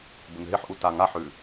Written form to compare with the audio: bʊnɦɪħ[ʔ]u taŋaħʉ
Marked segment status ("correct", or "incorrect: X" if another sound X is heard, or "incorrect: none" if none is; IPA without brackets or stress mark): correct